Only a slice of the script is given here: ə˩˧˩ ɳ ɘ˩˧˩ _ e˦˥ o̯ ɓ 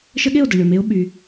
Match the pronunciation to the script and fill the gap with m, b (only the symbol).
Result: m